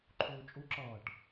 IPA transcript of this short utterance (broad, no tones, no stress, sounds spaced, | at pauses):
ǃʰ uː t͡ʃʼ u ǁ ʌː ʈ